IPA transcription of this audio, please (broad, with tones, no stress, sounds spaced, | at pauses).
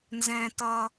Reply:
n z ɛ̃˧ t ʌ˧